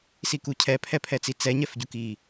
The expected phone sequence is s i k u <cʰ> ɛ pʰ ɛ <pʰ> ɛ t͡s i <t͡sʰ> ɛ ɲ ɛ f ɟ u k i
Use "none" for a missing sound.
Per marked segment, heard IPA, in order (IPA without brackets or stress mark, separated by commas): cʰ, pʰ, t͡s